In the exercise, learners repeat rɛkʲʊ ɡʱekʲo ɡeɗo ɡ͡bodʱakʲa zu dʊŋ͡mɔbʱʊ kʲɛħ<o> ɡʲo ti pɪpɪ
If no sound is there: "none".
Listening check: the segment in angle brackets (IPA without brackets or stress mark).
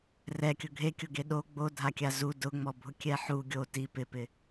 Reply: u